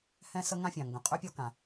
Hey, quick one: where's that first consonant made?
throat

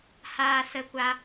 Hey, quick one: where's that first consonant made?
throat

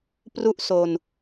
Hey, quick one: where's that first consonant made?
lips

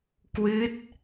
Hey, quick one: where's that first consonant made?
velum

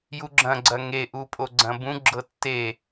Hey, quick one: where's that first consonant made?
palate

